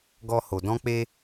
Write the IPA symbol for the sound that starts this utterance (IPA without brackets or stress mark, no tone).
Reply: ɡ